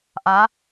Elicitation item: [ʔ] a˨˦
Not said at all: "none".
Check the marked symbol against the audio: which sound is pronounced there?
ʔ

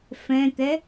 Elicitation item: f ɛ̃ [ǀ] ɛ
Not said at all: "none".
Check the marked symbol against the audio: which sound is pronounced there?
t̪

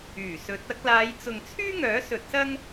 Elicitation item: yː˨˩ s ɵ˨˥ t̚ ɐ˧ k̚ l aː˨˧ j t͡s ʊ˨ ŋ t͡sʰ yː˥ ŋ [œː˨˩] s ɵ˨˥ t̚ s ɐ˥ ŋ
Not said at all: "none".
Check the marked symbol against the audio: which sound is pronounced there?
œː˨˥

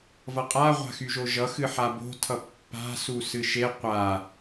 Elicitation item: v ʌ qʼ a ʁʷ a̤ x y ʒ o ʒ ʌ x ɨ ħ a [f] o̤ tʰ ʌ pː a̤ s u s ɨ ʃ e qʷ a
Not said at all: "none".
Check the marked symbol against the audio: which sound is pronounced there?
b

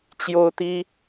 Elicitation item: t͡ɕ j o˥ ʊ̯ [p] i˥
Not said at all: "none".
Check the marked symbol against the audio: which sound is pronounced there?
t̪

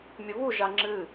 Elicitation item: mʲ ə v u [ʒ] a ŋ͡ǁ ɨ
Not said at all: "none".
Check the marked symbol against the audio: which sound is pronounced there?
ʒ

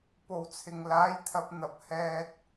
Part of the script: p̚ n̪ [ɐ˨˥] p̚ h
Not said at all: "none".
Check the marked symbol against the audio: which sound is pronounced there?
ɐ˨˥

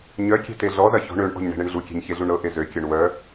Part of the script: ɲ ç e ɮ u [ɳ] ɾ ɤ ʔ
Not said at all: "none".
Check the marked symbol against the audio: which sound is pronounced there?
ɳ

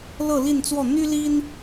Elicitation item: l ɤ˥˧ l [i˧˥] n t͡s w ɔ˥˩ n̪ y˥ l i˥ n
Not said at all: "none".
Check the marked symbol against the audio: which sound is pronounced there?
i˥˧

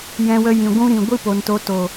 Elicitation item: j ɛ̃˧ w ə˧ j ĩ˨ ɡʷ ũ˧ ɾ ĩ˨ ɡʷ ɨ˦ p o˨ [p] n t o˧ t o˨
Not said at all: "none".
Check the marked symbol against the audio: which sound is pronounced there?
none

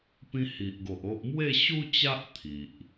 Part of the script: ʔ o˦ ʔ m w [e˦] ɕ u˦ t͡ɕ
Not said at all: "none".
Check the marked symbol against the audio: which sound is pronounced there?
e˥˧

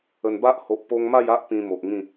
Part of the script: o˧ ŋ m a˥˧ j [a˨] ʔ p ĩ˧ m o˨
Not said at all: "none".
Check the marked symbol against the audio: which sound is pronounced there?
a˦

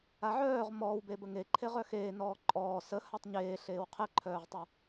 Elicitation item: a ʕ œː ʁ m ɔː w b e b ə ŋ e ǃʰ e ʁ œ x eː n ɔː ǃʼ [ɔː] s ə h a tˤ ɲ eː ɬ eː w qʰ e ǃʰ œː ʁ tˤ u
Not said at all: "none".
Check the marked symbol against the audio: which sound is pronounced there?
ɔː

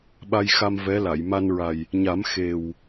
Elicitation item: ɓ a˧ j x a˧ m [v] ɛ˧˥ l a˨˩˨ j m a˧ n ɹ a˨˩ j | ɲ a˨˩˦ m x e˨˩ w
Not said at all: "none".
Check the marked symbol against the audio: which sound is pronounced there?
v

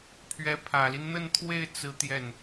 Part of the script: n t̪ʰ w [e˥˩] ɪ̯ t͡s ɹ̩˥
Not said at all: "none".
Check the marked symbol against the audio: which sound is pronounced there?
e˥˩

